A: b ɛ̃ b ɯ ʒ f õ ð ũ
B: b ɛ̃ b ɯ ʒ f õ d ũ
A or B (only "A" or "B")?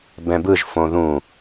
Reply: A